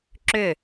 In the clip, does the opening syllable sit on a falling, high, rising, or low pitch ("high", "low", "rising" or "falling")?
falling